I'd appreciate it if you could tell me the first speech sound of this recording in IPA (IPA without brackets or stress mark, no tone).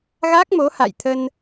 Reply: ɣ